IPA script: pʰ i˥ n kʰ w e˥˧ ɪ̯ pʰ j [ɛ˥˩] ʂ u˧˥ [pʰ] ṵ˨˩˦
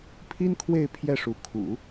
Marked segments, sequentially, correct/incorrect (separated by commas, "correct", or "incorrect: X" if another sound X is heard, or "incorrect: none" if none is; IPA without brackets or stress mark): correct, incorrect: kʰ